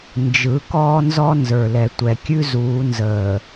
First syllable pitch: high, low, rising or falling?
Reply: rising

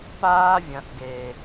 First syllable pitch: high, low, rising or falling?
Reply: high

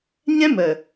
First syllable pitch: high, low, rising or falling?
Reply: high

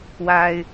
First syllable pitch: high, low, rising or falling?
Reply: low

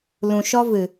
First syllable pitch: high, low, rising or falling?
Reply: low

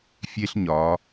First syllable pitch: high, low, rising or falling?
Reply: high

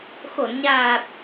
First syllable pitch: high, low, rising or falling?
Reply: low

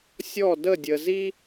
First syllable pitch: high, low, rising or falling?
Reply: falling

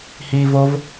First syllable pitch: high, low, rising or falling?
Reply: low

